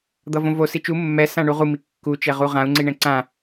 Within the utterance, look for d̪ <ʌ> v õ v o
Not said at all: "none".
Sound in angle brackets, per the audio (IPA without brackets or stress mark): ʌ